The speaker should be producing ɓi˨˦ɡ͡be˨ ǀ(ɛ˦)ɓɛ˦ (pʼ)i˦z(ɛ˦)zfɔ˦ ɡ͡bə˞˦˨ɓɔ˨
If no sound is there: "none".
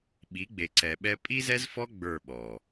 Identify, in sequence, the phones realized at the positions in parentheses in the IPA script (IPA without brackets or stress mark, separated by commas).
ɛ˨, pʼ, ɛ˦